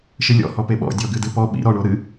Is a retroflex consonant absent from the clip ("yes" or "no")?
no